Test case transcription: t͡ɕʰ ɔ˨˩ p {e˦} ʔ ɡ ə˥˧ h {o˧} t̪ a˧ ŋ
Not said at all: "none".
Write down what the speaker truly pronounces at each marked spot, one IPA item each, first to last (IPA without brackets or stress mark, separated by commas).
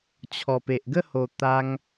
e˨, o˧